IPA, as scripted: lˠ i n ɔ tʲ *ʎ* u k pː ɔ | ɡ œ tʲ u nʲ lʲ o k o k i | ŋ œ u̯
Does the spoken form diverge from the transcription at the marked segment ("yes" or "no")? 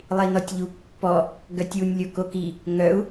no